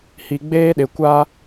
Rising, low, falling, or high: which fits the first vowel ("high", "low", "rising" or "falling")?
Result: low